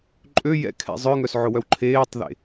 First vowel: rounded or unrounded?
rounded